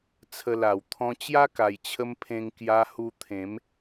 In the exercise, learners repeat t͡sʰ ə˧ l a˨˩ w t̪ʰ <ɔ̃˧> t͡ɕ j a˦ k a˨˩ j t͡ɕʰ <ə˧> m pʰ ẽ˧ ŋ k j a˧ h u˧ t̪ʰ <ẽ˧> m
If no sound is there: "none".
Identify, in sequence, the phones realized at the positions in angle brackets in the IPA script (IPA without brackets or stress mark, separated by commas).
ɔ̃˧, ə˧, ẽ˨˦